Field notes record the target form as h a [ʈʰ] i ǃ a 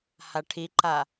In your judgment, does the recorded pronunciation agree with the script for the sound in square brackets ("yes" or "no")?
yes